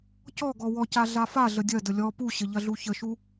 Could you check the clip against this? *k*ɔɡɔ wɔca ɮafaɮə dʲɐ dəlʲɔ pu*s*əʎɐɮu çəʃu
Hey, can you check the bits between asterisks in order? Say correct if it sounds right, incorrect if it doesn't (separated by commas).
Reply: incorrect, incorrect